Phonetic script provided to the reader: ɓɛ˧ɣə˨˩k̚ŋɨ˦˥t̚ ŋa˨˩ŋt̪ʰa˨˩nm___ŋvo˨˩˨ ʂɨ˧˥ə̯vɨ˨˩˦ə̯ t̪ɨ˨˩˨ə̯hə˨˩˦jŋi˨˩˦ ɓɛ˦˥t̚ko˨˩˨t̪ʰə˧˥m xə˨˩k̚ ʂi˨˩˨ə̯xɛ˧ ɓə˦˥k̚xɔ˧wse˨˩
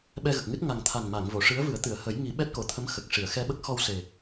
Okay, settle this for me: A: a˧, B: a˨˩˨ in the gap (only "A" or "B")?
B